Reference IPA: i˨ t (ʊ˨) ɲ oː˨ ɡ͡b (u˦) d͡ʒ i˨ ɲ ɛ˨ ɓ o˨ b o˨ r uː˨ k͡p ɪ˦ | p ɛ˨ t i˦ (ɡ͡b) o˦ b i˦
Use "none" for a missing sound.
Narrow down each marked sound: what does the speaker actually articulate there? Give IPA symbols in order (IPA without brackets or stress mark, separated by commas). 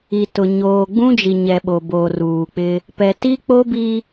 ʊ˨, ũ˦, k͡p